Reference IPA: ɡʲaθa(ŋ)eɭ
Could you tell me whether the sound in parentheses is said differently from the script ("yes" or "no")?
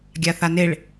yes